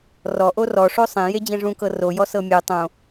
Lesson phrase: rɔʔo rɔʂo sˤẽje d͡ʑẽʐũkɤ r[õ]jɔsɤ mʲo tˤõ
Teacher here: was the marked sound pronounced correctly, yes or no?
no